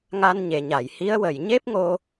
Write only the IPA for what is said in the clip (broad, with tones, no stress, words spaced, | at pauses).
ŋa˧nɲe˨˩˨ɲa˨˩˨j hi˧˥ə̯wə˨˩j ɲe˦˥p̚ŋo˧